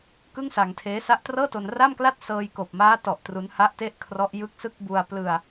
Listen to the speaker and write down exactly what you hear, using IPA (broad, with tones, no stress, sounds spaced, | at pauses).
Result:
k ɯ˥˩ ŋ s a˧ ŋ tʰ eː˦˥ s a˦˥ ʔ t r ɤː˥˩ t o˧ n r a˥˩ m k l a˥˩ t̚ s ɤː˧ j k oː˨˩ p̚ m aː˦˥ t ɔ˨˩ ʔ t r u˦˥ n h a˥˩ ʔ t e˥˩ ʔ kʰ r ɔ˦˥ ʔ j ɯ˦˥ k̚ s ɯ˥˩ k̚ b u˧ a̯ p l ɯ˧ a̯